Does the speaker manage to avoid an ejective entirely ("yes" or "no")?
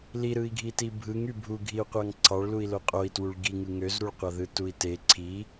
no